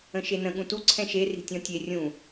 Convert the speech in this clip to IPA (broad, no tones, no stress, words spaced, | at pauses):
ə̃ʃenə̃ ɠũtu ǀʰɛ̃ʃe ri̤tʲɔ̃tʲe rʲũ